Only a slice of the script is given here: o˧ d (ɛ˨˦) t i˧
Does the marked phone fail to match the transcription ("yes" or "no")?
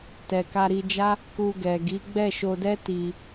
yes